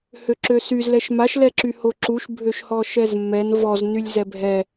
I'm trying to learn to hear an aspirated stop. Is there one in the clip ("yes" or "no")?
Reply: no